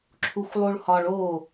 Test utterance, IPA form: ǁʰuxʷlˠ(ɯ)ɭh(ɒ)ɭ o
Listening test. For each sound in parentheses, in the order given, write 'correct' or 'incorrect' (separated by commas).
incorrect, correct